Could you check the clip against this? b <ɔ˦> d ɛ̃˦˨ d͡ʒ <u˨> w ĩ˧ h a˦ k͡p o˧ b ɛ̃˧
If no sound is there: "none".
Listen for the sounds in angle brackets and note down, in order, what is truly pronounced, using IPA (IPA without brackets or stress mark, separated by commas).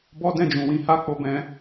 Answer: ɔ˦, ũ˨